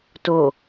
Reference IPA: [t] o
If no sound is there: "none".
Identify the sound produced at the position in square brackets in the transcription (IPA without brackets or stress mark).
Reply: t